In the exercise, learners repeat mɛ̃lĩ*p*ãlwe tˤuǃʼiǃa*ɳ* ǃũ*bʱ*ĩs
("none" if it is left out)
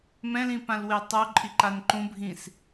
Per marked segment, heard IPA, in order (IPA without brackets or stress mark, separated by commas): p, n, bʱ